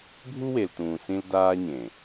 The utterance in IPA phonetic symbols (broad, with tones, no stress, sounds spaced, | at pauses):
bʱ u˦ w e˨ l t ũː˨ s ĩ˦ l d aː˦ ɲ ẽ˨